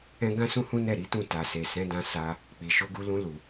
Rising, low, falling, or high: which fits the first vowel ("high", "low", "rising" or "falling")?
high